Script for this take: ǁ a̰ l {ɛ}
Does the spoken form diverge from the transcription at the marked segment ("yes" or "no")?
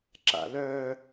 yes